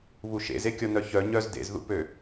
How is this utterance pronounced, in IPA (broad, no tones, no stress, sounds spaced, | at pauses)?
β u ʃ ḛ z e kʲ ɔ n œ ç œ ɲ œ z d ḛ z ð ṵ p ø